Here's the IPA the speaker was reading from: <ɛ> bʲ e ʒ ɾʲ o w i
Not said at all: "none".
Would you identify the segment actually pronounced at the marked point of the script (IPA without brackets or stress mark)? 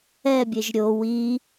ɛ